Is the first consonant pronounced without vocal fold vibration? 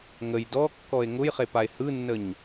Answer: no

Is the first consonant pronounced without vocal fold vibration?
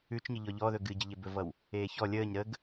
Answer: yes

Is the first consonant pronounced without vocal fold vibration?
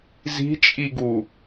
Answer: no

